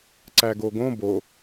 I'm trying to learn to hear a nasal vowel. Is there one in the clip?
yes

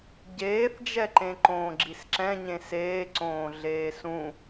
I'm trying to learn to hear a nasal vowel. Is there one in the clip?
yes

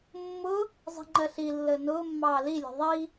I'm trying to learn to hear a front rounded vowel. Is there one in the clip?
no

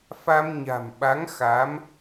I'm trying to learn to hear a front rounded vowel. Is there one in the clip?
no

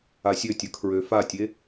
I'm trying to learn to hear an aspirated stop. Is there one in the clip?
yes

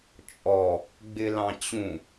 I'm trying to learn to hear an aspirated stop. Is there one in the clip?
no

